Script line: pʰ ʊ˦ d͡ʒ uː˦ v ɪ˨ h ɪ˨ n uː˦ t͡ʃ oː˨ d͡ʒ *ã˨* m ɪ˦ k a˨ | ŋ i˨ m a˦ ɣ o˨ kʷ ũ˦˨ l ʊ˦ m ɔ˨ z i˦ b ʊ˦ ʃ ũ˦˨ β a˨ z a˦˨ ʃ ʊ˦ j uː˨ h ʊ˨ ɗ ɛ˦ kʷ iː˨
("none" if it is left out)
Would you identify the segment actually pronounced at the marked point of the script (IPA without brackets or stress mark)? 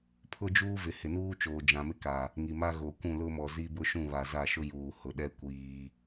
ã˨